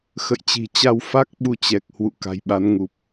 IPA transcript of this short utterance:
x ə̰˧˨ j t͡ɕ i̤˨˩ t͡ɕ a˧ w f a˦˥ k̚ ɓ u˧ t͡ɕ ɛ˨˩ k̚ h w ṵ˧˨ k a̤˨˩ j ɓ a˨˦ n ŋ u˨˩ p̚

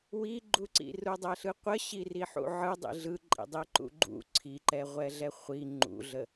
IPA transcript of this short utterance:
w i ɡ͡ǃ u ǀ ḭ r u dˤ ɛ ɬ ɯ qʷ ə ɕ i r i ħ ṵ ʕ ɯ dˤ ḭ ɮ ɯ ǃʼ ḭ dˤ i ǃ ṵ ɡ͡ǃ ṵ ǀʰ i ǃ ɛ ʁʷ ɛ ɮ ɛ χʷ i ŋ͡ǃ ṵ ɮ ə

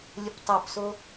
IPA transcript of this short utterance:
lʲ ə p tˤ o p s o

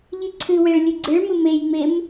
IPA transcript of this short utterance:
ʎ i ǀʰ ɨ w e ɭ lʲ ɨ ɡ͡ǀ ɨ ɭ m ɨ m e j ŋ͡m e m

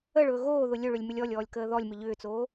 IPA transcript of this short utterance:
ə ɭ ɵː ɣ oː ð ʊ lʲ ɵ ɭ ʏ lʲ m ʏ lʲ ɔ lʲ ɔː lʲ k əː ð ɔ lʲ m ʏ ʎ ʏː t͡s oː

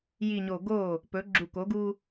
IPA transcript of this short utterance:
j i˨ ɲ o˨ ɡ o˦˨ | p ɵ˨˦ ɡ͡ǁ u˨ k o˨˦ ɡ u˦

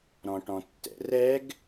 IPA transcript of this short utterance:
ɾ ɔ̃ ʈ ɔ̃ tː ɛ̰ r ɛ ɡ

